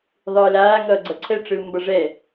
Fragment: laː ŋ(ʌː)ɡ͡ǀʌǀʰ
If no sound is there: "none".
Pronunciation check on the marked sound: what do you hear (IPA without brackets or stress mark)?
ʌː